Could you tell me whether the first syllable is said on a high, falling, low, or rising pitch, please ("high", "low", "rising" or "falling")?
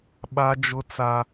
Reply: high